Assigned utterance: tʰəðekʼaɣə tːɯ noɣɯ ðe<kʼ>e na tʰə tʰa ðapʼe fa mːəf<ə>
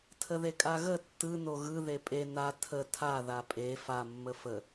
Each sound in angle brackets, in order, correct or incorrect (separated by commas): incorrect, correct